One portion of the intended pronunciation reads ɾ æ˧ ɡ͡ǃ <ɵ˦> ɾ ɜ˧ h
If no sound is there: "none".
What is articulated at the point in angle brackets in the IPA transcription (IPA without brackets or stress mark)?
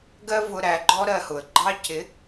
ɔ˦